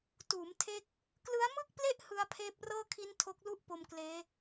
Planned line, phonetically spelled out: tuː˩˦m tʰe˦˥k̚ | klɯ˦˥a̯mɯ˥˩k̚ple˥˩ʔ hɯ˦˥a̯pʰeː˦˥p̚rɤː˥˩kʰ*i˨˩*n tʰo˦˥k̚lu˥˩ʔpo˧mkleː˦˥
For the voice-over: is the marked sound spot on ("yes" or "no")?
no